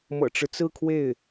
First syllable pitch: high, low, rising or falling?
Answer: low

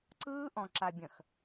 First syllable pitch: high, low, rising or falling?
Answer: high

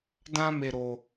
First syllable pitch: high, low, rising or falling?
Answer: high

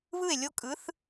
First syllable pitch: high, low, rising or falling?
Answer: falling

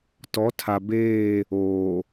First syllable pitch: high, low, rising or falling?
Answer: rising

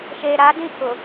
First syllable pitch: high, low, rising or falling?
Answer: low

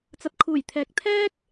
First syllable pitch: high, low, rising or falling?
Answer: low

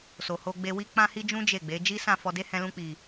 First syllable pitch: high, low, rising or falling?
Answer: low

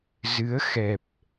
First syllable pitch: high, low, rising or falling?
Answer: rising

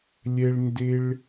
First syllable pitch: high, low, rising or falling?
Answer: high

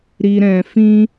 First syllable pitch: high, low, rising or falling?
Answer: low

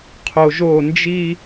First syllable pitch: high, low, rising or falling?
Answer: low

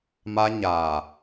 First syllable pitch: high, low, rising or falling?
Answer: high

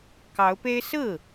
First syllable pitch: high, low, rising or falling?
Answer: rising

